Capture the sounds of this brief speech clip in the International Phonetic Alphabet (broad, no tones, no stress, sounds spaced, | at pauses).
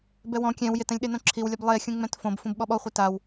b ɛ w ɔ̃ kʲ ɛ̃ w j ɪ t ɛ̃ lʲ ɗ e n õ ǁʰ i w lʲ ɛ b lˠ e xʲ ũ ŋ͡m ɛ̃ t f õ b f ũ b ɓ ɔ ɓ ɔ χʷ e t a w